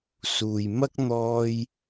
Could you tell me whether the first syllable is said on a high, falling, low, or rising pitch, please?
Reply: low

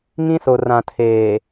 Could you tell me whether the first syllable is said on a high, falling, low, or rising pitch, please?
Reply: high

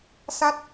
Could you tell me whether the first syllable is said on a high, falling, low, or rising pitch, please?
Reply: rising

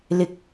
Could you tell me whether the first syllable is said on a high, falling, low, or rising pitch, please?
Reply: low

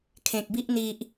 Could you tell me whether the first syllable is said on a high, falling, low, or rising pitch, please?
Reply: low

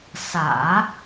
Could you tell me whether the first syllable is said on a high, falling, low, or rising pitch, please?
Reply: low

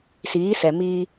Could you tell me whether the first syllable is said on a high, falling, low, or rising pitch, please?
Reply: rising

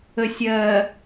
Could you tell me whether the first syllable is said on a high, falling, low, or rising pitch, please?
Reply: low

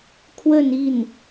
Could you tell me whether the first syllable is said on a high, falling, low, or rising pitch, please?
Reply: falling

